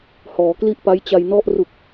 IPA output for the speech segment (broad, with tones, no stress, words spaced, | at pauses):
hɔː˩˦kli˥˩ʔpa˦˥jt͡ɕa˧j nɔ˥˩ʔ ru˨˩k̚